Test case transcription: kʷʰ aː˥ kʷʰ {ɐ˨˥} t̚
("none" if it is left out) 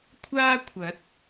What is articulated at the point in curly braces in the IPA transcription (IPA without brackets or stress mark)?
ɐ˨˥